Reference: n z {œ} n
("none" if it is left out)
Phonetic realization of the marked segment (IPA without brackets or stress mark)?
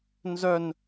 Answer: œ